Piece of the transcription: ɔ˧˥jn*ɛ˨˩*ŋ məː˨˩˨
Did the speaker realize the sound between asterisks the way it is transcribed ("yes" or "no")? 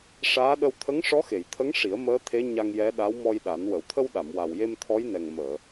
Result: yes